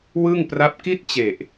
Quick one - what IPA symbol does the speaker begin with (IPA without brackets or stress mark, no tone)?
w